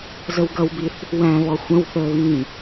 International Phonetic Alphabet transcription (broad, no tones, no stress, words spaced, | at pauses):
zəwɡʌwbiθ | wæ̃βɔ xʷə̃wθəːβĩː